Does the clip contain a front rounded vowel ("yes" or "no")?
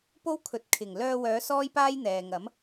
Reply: yes